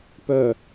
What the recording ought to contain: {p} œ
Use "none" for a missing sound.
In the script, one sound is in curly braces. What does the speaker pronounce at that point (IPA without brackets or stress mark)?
p